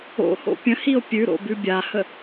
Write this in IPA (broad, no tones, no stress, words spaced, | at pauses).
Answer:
o̰ho̰ pʲə̃hio̯ pʲʉɾo̰ bʉbʲahə